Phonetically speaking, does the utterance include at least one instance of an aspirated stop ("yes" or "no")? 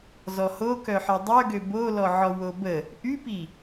no